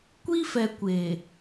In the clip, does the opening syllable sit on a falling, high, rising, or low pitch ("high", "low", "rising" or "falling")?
high